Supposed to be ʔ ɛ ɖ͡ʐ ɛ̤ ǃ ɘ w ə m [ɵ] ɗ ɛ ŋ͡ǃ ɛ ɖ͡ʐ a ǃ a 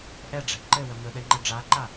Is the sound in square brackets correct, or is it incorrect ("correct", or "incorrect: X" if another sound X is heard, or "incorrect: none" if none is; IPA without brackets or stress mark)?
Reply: correct